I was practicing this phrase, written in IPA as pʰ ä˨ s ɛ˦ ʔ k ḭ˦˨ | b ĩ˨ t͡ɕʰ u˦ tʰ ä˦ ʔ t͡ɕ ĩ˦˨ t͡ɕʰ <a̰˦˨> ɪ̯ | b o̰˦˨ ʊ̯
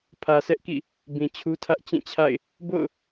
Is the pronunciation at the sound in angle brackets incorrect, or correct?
correct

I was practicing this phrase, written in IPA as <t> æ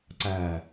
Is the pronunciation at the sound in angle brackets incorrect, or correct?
incorrect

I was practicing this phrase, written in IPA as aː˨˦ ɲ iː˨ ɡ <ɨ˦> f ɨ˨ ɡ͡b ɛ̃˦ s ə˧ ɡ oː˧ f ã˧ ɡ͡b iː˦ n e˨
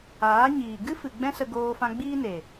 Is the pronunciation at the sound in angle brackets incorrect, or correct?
correct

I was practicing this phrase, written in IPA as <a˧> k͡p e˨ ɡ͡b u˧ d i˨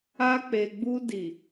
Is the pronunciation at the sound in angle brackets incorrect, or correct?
correct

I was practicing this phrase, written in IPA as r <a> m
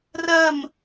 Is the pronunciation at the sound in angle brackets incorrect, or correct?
incorrect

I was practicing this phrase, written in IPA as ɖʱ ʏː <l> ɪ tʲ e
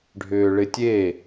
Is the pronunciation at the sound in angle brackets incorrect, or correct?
incorrect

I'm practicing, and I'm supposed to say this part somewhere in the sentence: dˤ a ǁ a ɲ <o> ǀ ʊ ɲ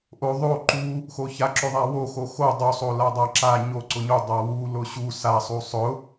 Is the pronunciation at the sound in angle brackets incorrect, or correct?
correct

